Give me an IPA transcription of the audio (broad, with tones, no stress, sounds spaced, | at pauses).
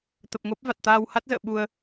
t̪ ə˨˩ p̚ ŋ o˦˥ p̚ v a˨˩ t̚ t̪ aː˧ w h a˦˥ t̚ z ə̰ː˧˨ ɓ u˧ ə̯